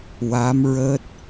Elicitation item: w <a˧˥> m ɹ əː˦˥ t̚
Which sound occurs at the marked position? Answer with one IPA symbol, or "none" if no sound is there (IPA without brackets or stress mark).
a˧˥